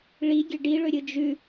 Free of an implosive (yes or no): yes